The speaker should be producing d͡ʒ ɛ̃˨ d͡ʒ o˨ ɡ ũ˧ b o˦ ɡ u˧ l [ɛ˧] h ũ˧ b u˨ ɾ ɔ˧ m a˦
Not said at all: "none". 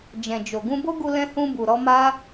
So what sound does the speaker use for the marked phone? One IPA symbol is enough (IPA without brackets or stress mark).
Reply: ɛ̃˧